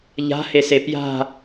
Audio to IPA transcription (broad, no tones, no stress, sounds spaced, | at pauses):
ʎ a̤ h e s e p j a̤